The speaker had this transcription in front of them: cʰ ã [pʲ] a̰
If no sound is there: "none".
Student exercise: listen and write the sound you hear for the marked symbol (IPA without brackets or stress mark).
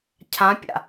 pʲ